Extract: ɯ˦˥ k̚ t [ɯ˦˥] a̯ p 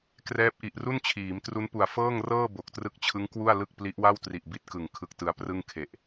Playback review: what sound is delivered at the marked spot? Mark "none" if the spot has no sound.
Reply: ɯ˦˥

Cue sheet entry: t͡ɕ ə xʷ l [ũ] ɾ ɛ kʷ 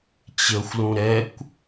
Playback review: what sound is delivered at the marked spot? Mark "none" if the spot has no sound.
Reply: ũ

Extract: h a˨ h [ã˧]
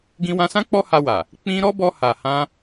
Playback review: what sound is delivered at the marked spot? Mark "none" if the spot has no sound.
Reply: ã˧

